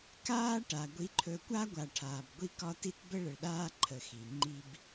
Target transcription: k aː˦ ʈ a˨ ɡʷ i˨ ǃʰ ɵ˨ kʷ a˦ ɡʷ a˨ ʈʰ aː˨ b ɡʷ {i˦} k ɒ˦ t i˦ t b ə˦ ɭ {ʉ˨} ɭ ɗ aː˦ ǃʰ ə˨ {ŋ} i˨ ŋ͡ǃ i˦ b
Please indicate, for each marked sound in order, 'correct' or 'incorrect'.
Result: correct, incorrect: ə˨, incorrect: x

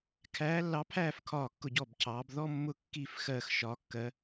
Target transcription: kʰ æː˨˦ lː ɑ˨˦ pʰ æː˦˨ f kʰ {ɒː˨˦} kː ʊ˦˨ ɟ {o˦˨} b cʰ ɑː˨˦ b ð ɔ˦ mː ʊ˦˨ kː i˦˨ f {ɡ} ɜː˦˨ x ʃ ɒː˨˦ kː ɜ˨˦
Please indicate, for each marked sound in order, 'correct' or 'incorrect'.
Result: incorrect: ɒː˦˨, incorrect: ɔ˦˨, incorrect: x

